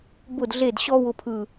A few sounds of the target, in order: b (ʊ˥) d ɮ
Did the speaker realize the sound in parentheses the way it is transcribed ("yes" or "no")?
no